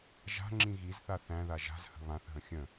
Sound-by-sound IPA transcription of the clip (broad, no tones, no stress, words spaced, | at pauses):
ʒa̤ŋ͡ǁĩ ɣizθa θæ̃ða ʒa̤zhə̤ βãθɦə̃ xʲə̃